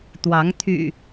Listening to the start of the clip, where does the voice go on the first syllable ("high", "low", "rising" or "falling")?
rising